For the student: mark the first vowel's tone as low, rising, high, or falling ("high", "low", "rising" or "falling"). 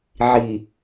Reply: low